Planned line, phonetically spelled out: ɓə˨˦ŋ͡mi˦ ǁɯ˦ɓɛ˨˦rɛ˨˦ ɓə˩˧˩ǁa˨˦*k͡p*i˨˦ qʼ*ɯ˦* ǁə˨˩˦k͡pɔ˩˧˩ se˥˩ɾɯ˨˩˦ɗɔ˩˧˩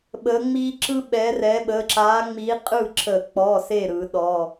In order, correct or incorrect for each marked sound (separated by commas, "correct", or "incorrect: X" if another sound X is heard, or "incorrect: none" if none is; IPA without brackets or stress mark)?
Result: incorrect: ŋ͡m, incorrect: ɯ˥˩